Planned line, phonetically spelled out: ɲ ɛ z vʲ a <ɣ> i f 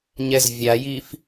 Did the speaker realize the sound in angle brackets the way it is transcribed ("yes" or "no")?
no